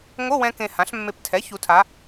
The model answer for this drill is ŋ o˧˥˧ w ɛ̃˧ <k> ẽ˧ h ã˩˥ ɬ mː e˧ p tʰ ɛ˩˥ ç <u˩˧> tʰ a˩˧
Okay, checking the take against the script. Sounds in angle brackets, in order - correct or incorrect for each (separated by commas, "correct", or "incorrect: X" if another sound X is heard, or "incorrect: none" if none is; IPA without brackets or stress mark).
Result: correct, correct